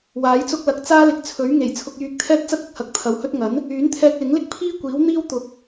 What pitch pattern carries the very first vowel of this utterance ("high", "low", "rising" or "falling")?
rising